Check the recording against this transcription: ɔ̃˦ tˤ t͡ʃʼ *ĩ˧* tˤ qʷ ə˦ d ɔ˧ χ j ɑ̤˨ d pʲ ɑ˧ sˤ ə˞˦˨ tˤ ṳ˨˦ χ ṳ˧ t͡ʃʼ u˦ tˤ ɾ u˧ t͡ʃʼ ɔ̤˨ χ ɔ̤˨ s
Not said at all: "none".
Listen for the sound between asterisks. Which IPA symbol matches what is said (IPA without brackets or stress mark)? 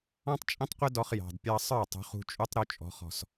ĩ˦